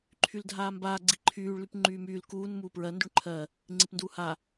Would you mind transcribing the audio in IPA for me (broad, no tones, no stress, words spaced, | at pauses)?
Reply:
ǃʰyldʱaːmbaː ɡ͡ǀiǃʰyːɭ lypŋ͡ǃyːmyːl kuːn muːpɹɜ ndyɳǃʰɜ | ŋ͡ǀipnduːha